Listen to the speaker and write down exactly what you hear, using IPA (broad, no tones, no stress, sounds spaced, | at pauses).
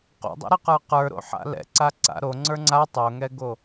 q o̰ dˤ ɛ̰ ɾ ɛ q ə˞ q ə˞ ɾ o̰ ħ a̰ l ɛ̰ ǀ a ǀ a̰ ɾ o ŋ͡ǀ ə˞ ŋ͡ǀ a tˤ o ŋ ɛ ɡ o